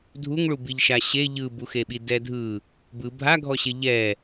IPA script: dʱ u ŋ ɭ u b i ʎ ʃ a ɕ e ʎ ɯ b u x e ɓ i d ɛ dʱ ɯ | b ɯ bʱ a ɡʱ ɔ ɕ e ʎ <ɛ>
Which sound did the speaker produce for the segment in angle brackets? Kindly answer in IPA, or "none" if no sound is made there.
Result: ɛ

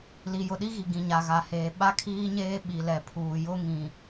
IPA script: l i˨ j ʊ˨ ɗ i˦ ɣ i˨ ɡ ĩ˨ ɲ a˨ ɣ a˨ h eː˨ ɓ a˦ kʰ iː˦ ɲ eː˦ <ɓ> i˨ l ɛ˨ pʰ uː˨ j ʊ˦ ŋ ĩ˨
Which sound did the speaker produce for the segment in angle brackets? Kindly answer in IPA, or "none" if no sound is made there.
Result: ɓ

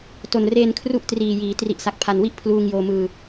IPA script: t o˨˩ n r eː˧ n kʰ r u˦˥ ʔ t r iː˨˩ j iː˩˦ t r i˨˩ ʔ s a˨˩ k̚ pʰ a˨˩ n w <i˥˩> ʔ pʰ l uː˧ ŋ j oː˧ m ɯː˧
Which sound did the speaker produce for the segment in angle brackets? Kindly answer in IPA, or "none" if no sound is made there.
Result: i˥˩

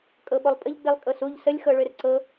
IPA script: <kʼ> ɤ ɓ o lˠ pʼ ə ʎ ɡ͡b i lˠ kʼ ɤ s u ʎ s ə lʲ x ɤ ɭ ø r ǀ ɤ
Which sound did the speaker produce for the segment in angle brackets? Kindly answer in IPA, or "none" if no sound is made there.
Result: kʼ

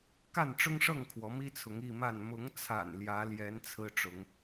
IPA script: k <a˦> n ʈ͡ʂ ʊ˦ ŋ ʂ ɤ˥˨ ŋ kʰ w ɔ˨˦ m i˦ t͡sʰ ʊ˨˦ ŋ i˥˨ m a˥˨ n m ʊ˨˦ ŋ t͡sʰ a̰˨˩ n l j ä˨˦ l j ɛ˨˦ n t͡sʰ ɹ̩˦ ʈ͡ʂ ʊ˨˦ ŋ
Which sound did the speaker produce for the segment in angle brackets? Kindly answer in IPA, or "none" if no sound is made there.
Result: a˥˨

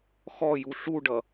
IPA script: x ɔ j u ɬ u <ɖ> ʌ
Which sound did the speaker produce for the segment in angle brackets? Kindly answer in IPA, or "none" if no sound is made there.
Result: ɖ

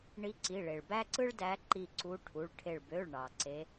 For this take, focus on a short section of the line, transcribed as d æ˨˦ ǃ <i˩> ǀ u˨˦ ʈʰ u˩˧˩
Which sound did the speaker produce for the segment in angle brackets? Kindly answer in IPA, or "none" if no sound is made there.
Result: i˧˩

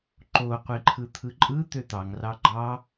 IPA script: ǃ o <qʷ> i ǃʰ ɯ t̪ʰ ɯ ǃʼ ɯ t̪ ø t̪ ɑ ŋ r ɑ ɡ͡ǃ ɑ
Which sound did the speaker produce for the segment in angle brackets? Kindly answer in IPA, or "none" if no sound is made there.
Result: qʷ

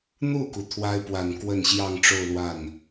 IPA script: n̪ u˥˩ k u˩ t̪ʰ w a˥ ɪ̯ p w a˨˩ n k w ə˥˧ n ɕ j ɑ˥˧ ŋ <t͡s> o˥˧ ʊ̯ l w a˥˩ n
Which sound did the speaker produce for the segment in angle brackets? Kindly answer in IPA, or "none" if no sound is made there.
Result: ʈ͡ʂ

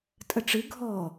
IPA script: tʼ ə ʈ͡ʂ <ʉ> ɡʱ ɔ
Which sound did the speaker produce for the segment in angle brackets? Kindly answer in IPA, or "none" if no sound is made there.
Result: ɨ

